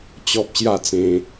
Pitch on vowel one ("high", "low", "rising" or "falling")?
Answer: high